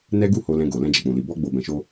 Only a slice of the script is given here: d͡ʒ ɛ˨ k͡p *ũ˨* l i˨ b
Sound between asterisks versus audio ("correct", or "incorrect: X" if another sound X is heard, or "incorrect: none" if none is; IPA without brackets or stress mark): correct